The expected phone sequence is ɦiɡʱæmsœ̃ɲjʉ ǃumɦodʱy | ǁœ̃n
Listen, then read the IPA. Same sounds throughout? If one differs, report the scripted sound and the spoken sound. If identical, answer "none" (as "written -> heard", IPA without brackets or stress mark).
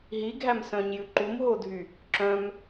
n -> m